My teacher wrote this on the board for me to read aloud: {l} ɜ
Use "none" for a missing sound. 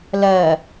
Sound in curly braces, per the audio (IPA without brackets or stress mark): l